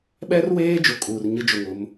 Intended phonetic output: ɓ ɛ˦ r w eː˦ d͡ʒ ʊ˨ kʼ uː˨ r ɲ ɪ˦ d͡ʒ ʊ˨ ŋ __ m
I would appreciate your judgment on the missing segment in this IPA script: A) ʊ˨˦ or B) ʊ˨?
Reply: A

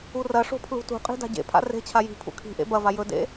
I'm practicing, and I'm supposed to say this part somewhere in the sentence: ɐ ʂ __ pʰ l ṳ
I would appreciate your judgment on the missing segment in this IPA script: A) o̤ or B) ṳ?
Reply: A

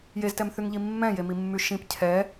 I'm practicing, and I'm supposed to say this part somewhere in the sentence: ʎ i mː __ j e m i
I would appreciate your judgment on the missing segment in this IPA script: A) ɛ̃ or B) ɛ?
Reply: A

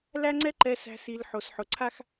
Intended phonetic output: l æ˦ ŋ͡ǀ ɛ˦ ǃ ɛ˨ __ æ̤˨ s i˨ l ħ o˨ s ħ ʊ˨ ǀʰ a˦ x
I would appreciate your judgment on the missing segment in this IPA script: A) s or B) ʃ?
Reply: A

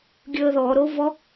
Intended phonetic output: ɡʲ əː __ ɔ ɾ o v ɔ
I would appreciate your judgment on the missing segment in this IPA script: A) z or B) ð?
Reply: B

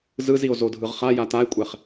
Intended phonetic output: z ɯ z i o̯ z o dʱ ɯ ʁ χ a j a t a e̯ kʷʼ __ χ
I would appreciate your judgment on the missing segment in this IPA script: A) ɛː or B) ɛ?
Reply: B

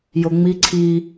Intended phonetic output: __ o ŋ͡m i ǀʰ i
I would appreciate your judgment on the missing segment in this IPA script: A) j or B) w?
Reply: A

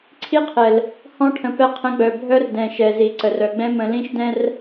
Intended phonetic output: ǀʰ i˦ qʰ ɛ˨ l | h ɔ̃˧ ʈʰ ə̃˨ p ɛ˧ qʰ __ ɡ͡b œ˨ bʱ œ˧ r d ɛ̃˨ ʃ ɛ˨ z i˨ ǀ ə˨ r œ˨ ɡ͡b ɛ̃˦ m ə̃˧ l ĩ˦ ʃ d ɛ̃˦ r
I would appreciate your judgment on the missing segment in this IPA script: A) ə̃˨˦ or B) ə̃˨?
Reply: A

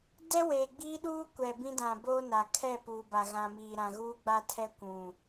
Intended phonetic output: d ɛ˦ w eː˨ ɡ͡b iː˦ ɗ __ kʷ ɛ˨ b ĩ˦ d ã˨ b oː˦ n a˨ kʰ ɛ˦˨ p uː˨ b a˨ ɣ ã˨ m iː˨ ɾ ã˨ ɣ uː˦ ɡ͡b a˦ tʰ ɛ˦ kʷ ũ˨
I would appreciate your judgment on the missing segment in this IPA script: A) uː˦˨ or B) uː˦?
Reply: B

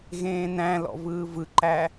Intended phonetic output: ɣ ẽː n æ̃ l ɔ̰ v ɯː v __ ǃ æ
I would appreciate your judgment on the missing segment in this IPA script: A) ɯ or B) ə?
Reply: A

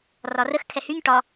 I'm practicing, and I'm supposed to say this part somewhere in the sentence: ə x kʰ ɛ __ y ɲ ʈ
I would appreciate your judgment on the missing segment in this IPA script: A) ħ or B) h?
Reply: B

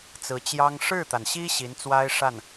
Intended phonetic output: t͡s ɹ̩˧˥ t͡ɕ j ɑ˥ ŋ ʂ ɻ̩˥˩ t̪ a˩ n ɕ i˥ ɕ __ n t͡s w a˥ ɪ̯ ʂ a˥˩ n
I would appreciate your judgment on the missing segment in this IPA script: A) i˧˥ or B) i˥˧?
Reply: A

